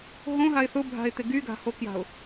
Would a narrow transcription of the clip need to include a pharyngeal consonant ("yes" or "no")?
no